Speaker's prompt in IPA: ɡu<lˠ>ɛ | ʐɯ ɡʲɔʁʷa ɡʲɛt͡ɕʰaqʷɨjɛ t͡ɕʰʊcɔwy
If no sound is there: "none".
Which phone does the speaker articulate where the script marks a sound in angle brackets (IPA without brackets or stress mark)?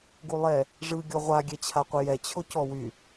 lˠ